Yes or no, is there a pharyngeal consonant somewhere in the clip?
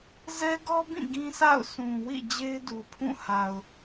no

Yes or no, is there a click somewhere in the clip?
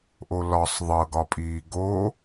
no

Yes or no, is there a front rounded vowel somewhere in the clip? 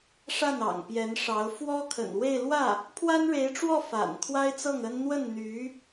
yes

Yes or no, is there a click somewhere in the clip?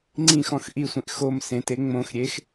yes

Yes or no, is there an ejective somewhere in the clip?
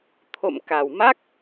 no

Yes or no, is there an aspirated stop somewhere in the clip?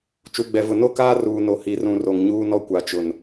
no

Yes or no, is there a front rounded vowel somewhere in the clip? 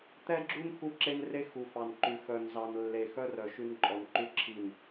yes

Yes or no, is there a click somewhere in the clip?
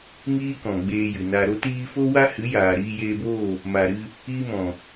no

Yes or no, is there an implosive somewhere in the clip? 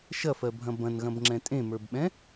yes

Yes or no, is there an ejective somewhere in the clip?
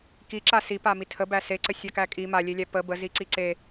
yes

